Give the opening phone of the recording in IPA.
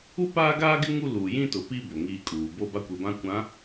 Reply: u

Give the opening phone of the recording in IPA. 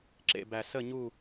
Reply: ǁ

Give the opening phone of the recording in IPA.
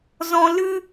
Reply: z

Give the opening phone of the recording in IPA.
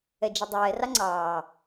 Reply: ɛ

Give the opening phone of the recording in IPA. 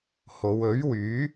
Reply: h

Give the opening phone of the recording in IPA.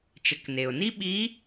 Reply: t͡ʃ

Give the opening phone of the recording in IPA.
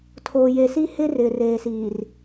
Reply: tʰ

